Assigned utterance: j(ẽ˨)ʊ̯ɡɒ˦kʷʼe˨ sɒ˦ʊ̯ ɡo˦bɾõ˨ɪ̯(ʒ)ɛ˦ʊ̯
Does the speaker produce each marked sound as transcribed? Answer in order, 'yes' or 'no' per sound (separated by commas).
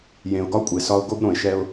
yes, no